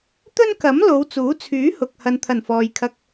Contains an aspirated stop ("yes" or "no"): yes